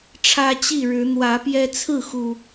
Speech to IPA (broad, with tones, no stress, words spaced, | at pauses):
ʈ͡ʂʰä˦t͡ɕi˥˨ ɻɻ̩˨˦n̪wä˨˦pjɛ˦ t͡sʰɹ̩˥˨xu˨˩